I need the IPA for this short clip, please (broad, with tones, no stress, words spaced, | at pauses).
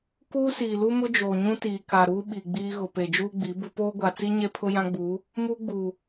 kuː˦siː˨lu˦mʊ˦ d͡ʒoː˨ɲũ˦ tiː˨ka˨ɾuː˦ ɓi˨ɡ͡biː˦ɣʊ˨ pe˨d͡ʒuː˦ɡ͡bi˨˦ bʊ˦ poː˦ɡʷa˨t͡si˦ ɲe˦pʰʊ˦jã˦ɡ͡buː˨˦ | muː˦ɡ͡buː˨